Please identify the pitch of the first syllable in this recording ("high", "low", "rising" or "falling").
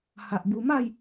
low